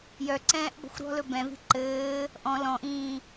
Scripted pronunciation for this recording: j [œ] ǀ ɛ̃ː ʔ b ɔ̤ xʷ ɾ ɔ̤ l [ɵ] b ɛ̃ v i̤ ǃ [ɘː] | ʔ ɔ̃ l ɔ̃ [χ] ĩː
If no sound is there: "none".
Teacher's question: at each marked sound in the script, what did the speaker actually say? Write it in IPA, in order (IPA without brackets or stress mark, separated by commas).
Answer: œ, ɵ, ɘː, ʔ